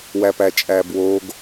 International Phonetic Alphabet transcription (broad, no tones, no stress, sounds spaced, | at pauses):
w æ p æ t͡ʃʼ æ b w o ɡ